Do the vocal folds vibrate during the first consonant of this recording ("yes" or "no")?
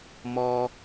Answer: yes